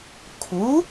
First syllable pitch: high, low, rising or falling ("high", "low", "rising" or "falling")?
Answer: rising